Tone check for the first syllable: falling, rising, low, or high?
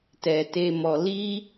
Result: low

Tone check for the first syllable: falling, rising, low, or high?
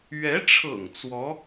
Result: rising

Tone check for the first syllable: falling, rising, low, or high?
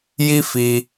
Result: high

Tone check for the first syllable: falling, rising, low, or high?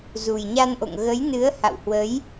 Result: low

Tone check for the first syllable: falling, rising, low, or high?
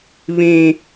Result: low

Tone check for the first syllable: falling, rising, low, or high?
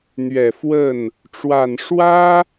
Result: low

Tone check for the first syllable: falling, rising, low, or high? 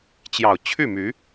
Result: low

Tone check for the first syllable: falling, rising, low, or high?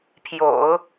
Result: low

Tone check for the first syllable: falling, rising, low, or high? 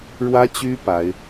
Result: high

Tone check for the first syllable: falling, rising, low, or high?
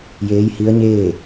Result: rising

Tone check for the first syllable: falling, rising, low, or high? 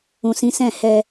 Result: low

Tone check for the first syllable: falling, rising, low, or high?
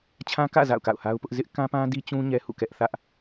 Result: high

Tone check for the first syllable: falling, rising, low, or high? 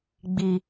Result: low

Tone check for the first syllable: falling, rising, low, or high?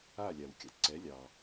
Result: falling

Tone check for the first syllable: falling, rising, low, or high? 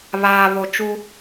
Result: low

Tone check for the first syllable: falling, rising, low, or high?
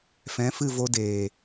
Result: rising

